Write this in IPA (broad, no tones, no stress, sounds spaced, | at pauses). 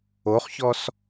o χ ç ɔ s